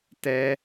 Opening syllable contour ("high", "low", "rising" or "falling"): high